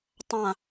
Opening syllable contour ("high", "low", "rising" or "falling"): falling